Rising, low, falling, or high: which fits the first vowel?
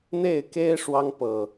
falling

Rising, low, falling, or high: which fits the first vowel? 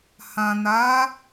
low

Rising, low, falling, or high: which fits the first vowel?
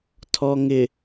low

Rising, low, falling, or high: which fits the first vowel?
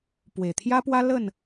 low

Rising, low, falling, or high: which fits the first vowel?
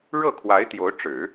falling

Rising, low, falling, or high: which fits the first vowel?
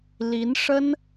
rising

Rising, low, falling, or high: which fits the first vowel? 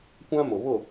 high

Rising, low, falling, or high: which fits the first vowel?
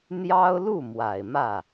high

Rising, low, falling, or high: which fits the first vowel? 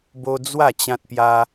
high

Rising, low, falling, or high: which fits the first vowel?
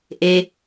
high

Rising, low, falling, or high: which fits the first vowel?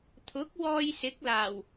rising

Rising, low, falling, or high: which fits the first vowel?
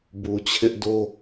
low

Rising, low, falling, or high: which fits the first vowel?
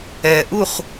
low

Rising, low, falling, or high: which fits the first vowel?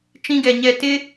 high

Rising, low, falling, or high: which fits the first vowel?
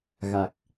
low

